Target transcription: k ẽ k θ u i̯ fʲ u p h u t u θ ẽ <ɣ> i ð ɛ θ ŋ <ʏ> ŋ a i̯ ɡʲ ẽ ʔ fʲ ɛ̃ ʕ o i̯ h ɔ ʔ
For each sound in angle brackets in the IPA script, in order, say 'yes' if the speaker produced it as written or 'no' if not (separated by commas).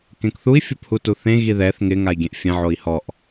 yes, no